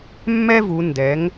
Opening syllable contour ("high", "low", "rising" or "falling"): high